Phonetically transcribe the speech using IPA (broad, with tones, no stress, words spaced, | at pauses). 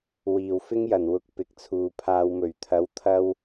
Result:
wiː˨˩wfɪ˥ŋjɐ˨˩nwʊ˧k̚ pɪ˨k̚t͡sʰuː˨ pʰaː˨wmɵ˨˩ɥt̪ʰɐ˨˥wt̪ʰɐ˧w